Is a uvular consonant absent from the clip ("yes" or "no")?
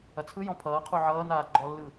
no